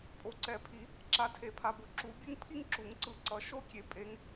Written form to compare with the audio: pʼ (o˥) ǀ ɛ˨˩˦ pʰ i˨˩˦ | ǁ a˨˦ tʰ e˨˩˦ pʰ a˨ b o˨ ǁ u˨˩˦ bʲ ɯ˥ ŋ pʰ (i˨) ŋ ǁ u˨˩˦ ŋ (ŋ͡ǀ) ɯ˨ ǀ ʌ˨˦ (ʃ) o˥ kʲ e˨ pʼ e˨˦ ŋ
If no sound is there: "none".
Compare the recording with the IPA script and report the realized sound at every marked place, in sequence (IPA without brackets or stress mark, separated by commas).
o˨˦, i˥, ǀ, ʃ